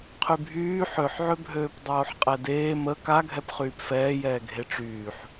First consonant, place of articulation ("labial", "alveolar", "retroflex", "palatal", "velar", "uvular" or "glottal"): uvular